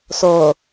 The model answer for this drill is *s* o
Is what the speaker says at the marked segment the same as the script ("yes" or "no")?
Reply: yes